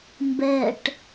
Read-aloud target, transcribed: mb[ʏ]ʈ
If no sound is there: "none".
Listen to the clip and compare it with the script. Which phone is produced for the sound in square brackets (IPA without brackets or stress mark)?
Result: ɛ